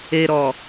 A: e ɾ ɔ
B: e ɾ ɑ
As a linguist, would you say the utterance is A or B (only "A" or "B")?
A